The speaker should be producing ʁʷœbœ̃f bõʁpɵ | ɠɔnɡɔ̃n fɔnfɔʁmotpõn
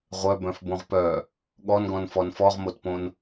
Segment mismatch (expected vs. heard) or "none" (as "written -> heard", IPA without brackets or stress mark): ɵ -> œ